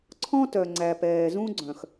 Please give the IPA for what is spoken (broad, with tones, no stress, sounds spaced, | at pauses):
ǀʰ ɔ̃˦ t œ˨ ŋ͡ǀ æ˨ p ɛː˨ z ũ˦ ɡ͡ǀ œ̃˨ x